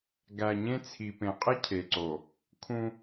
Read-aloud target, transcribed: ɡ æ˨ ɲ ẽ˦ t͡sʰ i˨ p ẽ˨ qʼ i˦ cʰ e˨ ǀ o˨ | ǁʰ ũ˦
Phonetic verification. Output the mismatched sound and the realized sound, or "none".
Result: ǁʰ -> kʰ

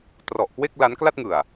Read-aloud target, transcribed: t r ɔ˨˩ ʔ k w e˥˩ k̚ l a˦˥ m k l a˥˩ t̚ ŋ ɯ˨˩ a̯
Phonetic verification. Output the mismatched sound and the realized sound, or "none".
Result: m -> n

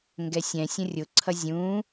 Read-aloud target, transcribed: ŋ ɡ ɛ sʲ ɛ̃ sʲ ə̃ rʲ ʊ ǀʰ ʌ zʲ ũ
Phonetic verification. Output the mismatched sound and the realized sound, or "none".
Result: none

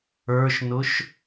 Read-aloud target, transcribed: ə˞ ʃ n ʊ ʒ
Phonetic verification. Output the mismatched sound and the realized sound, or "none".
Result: ʒ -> ʃ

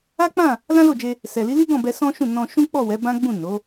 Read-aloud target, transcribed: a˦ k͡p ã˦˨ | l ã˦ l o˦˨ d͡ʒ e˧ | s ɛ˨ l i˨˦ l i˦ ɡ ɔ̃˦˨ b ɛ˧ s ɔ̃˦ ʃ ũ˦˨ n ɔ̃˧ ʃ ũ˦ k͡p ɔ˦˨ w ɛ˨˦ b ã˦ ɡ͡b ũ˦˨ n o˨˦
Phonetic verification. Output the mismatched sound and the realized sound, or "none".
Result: none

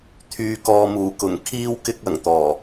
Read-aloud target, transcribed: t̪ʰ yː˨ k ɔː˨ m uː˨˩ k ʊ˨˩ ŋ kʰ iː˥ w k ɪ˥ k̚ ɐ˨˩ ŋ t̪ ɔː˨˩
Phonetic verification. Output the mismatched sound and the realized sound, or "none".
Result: none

